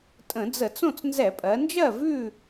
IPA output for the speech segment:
tʼ ə̃˧˩˧ d͡z ə˧˩˧ t͡s õ˥˨ t͡s n z ɛ˧˩˧ pʼ ɜ˩˧ n d͡ʒ ɜ˥˨ v ʉ˥˨

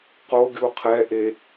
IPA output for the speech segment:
q o ɡʲ u qʰ ɛ ʔ e

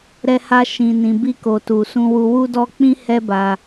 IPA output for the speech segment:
ɾ ɛ˧ h a˧ ʃ ĩ˨ n ĩ˨ b i˧ k o˨ t u˨ s ũ˧ w u˧ w u˦ d ɔ˦ k͡p ĩ˦ h ɛ˦ b a˧

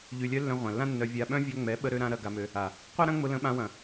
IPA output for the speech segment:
ʎ y˨ lʲ œ˧ lː œ̃˧ ʁʷ ã˨ lː ã˦ nː œ˧ vʲ a˧ ɓ œ̃˦ vʲ œ˧ ŋ͡m ɛ˨˦ ɓ ə˧ ɾ ø˧ ɾ ã˧ ɾ ɐ˧ ɡ a˧ m ø˧ | a˨ | qʷ ɐ˦ ɾ ɐ̃˦ ŋ͡m ʊ˧ l ə̃˧ ɓ ã˧ w ɐ̃˨

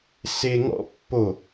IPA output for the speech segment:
s e ŋ ɔ̰ pː o

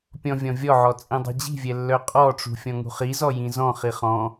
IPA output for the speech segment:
pʲ ɔ̃ vʲ ɔ̃ vʲ ɔ ʕ ɔ t͡sʼ ĩ dˤ i̤ d͡ʑ i̤ vʲ ɛ lː œ qʼ ɔ ʈ͡ʂ ṳ fʲ ɔ̃ ŋ ṳ χ i z ɔ j ĩ z ɔ̃ χ i χ ɔ̃

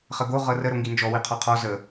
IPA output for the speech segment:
χ ə ɡ o ʁ ɤ r ə ɾ o ŋ ɡ i n d͡ʒ ɔ w i qʰ ɔ qʰ ɔ z ə

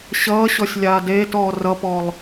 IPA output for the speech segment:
ɕ ʌː ɕ ɔ sʲ lʲ aː d eː t ɔː r ʌ p ɔ lˠ

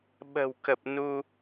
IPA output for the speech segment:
ɓ ə̤˨˩ w k ə˨˩ p̚ n u˧

